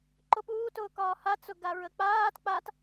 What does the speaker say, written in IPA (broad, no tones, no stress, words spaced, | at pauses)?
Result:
ǃʊpuːtʊː kɒːhat͡sʊ ɡaɹək͡paːt k͡pat